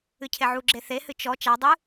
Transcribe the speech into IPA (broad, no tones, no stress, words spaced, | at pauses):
ɨcʰeʕuɡ͡ǁe θehɨ t͡ʃɔ t͡ʃadˤɨ